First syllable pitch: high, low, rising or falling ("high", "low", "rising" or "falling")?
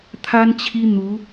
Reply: high